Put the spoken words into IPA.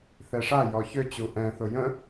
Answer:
θ ɛ ʂ a j ɔ ç ø t͡ɕ u ʔ ɛ̃ θ ʊ j ə̃

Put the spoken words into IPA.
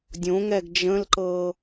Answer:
dʲ õ ŋ ɛ ɡ d͡ʒ ə̃ l ǃ ɤ

